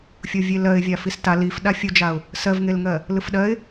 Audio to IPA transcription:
fʲovʲelɜɪ̯ vʲafista lif ɗafʲud͡ʒaʊ̯ | sɜvŋelŋɜ | lɯfɗɜɪ̯

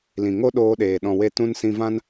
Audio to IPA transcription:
lĩ˨ŋo˦ɗoː˧ɗeː˨ ɗɔ̃˨we˧ tũ˧nsĩ˧vã˦n

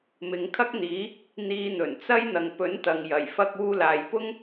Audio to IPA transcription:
mɪ˨˧ŋkʰɐ˥k̚n̪iː˨˥ | n̪iː˧n̪ɵ˨˩nt͡sɐ˥j n̪ɐ˨ŋpɵ˨˥nt̪ɐ˨ŋ jɐ˨˩jfɐ˧k̚ uː˧laː˨jpʊ˥ŋ

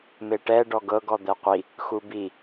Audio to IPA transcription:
meʈɛ ɖɔɡɤɡ ɔd̪ɛqʷi | xubi

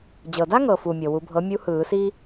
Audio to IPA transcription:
d͡ʑɤ˩da˥ŋɤ˩fu˩ mʲɤ˩wu˨˩˦bʱɤ˩˥ mʲu˧˥hɯː˨˩˦si˥

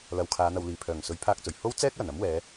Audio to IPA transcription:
lɐ˨wkʰaː˨˧n̪ɐ˨w liː˨˩ pʰœː˨˩ŋ sɵ˨˥ɥpʰaː˧k̚t͡sɵ˨˩ɥ ho˥w t͡sɛː˥k̚wɐ˨˩nɐ˨˥mwɛː˨˧

